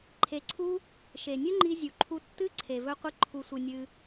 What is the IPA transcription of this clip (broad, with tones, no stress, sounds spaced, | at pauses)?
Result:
ǃʰ e˧ ǀʰ u˦ | ʃ e˨ nʲ ɵ˦ ŋ͡ǃ i˧ zʲ u˨ ǃʰ u˧ tː ɨ˦ ǀʰ e˨ v ɵ˧ qʷ ɨ˧ ǃʰ u˨ sʷ ɨ˨ nʲ ɨ˧